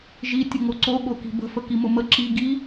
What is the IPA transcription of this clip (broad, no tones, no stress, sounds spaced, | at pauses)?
ʒ i tʲ ə ŋ o ǀ o ɠ o k i̤ b ə̤ f ə k i m ʊ m ə ǁ i ɡ i